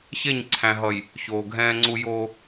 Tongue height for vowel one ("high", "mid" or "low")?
mid